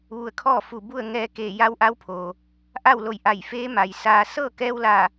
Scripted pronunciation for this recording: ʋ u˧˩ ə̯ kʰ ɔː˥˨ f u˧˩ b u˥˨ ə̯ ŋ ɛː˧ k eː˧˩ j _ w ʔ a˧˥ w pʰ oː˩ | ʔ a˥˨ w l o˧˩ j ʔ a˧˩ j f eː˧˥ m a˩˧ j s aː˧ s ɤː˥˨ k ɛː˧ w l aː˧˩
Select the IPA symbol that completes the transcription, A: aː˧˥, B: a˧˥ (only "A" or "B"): B